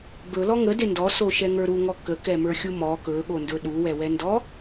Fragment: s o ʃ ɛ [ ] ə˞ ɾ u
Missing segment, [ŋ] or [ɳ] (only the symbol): ŋ